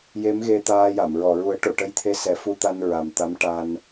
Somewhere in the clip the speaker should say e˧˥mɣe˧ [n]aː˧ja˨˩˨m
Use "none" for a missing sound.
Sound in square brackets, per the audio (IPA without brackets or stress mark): t̪